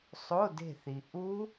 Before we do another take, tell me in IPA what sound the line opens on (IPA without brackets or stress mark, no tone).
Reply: sˤ